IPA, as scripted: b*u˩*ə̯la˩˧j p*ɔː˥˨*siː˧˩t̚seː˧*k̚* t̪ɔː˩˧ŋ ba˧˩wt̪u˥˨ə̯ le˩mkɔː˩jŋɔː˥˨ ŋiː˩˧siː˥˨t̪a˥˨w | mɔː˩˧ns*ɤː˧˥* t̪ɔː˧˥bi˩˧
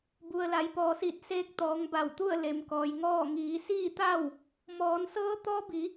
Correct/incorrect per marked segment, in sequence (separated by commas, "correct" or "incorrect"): correct, incorrect, correct, correct